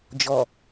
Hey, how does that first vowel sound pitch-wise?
low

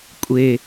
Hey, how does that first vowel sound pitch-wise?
low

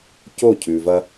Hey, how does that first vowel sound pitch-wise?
falling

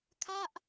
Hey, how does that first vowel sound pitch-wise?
falling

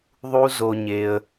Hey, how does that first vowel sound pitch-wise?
low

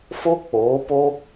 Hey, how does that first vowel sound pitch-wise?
high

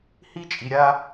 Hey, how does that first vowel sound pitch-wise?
high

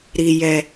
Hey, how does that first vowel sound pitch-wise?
low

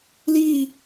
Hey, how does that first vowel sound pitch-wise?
falling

